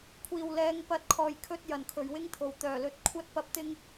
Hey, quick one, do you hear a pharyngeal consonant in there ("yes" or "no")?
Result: no